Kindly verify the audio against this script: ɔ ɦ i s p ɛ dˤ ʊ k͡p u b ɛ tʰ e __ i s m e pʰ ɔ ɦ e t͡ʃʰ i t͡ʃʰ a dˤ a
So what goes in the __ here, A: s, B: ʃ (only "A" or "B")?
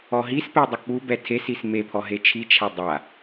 A